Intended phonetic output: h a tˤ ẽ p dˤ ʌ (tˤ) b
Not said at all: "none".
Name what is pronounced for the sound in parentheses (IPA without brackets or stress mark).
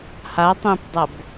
none